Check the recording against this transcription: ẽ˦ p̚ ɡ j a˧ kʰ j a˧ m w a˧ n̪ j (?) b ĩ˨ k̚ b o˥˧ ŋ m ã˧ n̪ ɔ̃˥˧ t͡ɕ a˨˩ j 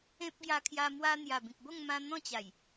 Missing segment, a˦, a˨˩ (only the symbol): a˨˩